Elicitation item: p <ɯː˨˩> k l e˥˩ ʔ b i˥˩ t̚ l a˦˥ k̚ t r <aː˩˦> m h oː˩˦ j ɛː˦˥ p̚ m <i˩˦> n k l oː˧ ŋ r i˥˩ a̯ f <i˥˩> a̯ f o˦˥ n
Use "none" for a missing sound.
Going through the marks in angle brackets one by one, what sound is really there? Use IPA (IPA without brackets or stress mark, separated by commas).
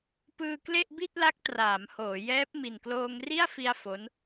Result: ɯː˧, aː˩˦, i˨˩, i˧